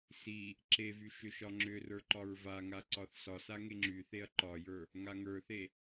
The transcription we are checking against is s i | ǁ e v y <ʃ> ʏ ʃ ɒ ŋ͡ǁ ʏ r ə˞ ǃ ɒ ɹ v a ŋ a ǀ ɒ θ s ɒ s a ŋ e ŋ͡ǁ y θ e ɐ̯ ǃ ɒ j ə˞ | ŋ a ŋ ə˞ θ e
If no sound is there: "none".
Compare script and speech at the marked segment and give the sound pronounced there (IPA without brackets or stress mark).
ʃ